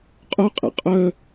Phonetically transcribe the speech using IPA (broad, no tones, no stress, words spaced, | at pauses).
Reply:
qʼʊqʼɛ̰ qʼœ